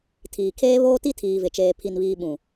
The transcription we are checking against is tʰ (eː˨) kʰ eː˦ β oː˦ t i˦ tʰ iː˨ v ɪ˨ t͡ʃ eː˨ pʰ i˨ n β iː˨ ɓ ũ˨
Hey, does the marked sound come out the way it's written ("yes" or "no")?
no